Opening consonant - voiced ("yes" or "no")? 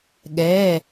yes